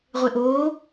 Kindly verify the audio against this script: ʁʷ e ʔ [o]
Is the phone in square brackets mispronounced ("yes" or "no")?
yes